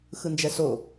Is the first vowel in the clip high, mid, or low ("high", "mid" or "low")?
high